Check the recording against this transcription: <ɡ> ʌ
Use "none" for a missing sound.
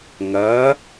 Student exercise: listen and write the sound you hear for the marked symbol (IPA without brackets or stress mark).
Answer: ŋ